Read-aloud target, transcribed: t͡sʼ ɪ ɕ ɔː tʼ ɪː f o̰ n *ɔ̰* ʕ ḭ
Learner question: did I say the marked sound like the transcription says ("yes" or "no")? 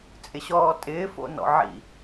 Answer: yes